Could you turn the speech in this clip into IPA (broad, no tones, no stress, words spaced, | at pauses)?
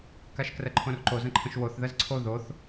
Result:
kaʃkrəǃʰõrǃo zə̃ǃʰə̃ʃwoθ ðəzǀʰo ðoθ